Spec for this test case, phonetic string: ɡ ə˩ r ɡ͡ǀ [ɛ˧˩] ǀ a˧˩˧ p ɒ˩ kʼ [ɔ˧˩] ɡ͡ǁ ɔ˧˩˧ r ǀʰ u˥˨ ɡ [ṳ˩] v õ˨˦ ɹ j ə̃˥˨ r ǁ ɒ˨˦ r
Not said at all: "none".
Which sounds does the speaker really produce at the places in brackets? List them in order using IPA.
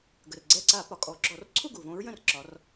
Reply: ɛ˧˩, ɔ˨˦, u˩

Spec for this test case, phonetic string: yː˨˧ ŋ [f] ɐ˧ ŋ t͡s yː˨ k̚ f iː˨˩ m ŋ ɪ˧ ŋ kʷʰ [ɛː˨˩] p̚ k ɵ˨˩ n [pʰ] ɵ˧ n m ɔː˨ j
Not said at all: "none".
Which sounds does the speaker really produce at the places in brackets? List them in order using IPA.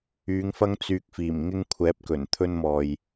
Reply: f, ɛː˨˥, t̪ʰ

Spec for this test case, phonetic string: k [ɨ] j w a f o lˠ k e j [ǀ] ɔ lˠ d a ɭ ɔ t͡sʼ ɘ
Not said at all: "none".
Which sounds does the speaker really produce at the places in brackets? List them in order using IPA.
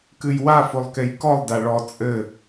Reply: ɨ, k

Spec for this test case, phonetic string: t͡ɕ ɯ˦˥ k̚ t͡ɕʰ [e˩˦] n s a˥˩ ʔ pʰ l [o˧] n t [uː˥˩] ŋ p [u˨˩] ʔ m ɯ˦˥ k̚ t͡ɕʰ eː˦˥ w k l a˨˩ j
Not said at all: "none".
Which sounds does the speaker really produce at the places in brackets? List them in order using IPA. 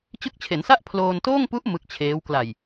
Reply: e˩˦, oː˧, oː˥˩, u˦˥

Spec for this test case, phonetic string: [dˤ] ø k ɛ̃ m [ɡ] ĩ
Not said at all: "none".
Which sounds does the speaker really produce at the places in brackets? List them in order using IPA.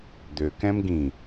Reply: d̪, ɡ

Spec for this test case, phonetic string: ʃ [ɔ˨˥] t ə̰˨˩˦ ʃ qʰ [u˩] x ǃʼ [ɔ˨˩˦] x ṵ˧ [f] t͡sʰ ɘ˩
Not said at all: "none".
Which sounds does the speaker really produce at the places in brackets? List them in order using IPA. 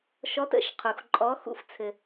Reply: ɔ˨˥, u˩, ɔ˨˥, f

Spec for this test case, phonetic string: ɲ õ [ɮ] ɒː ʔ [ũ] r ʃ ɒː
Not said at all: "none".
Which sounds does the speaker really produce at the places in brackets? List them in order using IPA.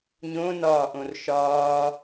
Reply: n, õ

